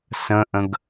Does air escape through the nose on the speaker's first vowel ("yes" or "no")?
yes